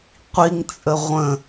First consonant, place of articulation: uvular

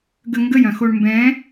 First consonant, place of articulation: velar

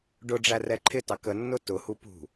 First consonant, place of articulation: retroflex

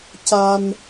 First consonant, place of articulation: palatal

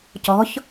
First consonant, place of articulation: palatal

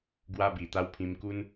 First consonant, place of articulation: velar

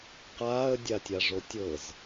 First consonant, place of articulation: uvular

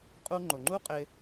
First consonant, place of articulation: uvular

